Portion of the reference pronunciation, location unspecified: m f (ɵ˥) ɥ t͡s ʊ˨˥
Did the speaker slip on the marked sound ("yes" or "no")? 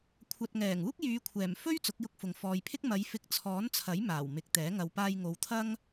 no